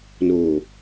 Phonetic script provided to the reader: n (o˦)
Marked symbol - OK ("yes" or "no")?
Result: no